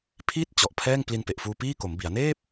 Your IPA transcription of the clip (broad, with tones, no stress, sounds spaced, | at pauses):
pʰ i˥˩ t̚ t͡ɕ ɔ˨˩ ʔ pʰ ɛː˥˩ ŋ p l i˧ n p e˨˩ ʔ f uː˧ p iː˥˩ k o˩˦ m b i˩˦ a̯ n eː˥˩ p̚